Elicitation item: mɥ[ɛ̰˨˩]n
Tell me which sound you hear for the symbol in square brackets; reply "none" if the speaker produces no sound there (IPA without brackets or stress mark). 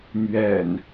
ɛ̰˨˩